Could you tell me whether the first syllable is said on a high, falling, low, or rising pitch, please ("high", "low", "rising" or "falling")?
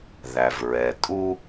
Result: low